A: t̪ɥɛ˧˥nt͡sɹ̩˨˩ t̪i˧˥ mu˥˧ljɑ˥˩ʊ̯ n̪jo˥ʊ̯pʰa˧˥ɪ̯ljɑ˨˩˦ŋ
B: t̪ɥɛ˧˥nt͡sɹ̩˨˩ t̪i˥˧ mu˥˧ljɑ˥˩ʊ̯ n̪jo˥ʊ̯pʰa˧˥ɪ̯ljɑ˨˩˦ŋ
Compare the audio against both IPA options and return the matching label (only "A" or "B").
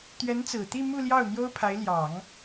B